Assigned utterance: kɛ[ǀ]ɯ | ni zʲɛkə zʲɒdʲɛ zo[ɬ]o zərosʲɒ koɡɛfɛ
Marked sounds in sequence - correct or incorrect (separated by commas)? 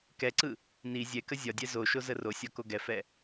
correct, incorrect